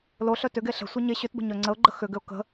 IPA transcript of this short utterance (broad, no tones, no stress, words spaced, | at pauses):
loɬœ tʏɡe ɬə̤sʷe ɲe ɕʏtbə̤ɲœ ŋ͡ǀəʊ̯ɡ͡ǃə xʏɡʏʊ̯ kə̤